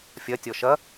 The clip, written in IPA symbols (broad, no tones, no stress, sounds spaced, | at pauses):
fʲ ɐ tʲ ɔ ʃ ɐ